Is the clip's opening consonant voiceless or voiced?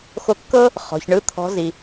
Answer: voiceless